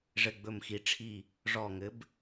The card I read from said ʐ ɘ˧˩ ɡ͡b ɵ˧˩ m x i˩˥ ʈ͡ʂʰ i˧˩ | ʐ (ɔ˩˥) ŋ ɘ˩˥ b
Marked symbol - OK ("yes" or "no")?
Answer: no